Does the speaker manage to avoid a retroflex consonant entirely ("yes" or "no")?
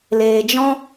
yes